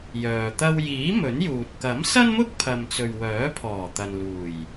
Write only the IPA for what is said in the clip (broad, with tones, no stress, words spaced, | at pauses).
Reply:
jœː˨t̪ɐ˥w jiː˨˥ mɵ˨˥njuː˨t̚ kɐ˨˥msɐ˥nmʊ˥k̚ pʰɐ˨mt͡sɵ˨ɥ wœː˨˥pʰɔː˨˩ t̪ɐ˨nluː˨˩j